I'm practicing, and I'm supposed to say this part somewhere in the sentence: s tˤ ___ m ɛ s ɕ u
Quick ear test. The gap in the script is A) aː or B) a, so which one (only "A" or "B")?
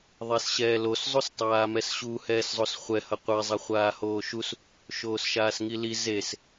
A